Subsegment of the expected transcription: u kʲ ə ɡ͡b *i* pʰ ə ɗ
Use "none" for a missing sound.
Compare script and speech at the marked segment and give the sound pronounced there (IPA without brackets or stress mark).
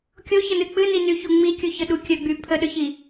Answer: y